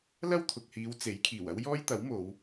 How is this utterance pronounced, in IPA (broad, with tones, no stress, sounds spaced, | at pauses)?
l ɐ˥ w t̪ʰ ʊ˨ k̚ h iː˨˧ w t͡s e˨˥ j kʰ iː˨˩ w ɐ˥ w j ɔː˥ j t̪ ɐ˨˥ w m o˨˧ w